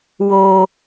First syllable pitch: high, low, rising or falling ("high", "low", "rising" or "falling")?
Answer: high